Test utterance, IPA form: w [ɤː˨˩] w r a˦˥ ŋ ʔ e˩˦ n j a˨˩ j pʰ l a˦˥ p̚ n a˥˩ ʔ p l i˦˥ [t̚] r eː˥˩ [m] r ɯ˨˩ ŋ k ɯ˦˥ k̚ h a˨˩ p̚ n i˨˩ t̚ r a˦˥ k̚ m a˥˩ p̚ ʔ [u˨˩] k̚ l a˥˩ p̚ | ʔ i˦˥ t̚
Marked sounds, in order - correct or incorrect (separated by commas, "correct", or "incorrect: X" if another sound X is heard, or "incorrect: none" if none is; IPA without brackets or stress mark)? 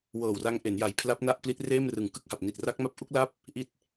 correct, correct, correct, incorrect: u˦˥